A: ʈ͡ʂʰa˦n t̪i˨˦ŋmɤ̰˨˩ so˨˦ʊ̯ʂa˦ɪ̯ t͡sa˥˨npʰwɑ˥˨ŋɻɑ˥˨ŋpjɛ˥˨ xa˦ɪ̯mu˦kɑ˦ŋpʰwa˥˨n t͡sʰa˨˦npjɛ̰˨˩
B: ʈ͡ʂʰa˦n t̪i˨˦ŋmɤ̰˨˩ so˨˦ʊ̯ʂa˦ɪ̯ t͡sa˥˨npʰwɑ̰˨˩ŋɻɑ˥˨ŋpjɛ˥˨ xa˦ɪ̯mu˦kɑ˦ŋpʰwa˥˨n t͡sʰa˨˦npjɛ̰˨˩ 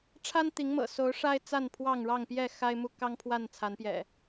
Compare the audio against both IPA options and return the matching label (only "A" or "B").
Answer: A